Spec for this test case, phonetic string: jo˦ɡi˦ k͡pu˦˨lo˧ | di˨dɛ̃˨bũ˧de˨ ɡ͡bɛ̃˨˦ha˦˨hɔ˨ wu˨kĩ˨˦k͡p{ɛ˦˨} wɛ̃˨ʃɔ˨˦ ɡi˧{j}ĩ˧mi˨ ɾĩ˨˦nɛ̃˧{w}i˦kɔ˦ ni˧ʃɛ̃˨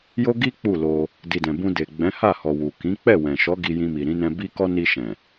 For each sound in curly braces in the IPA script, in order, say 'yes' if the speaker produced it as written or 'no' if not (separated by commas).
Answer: yes, yes, no